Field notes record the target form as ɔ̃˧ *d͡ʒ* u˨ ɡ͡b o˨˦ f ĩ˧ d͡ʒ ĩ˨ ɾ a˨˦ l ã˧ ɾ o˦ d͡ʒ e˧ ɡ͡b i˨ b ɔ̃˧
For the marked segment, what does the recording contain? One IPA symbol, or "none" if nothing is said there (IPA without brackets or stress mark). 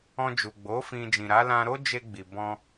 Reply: d͡ʒ